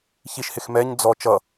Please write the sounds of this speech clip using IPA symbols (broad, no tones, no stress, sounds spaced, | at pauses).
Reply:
ç i ʃ h ɪ x m ɛ ɲ d͡z ɔ t͡ʃ ʌ